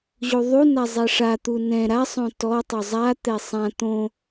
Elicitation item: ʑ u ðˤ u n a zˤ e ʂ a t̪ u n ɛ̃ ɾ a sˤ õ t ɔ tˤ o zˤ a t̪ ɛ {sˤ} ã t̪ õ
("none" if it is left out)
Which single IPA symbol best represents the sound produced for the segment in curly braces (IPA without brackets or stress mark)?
sˤ